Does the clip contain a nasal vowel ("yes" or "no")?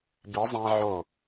yes